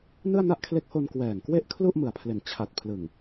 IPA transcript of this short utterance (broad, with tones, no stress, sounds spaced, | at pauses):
n ɯ˥˩ a̯ n a˥˩ ʔ kʰ l e˦˥ k̚ h o˧ n k w ɛː˨˩ ŋ k w e˥˩ ʔ kʰ l u˥˩ ʔ m ɯ˨˩ a̯ pʰ l e˨˩ n t͡ɕʰ a˨˩ t̚ pʰ l ɯ˨˩ ŋ